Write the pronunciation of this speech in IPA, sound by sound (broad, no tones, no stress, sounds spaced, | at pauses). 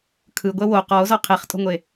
kʰ ɯ ɡʷ ɛ w o q ɔ o̯ z ɔ qʰ e χ tʼ o̤ ŋʷ e